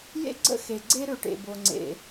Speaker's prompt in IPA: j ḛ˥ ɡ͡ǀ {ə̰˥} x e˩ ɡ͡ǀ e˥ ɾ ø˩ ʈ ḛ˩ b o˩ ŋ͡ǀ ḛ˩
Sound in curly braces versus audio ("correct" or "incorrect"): correct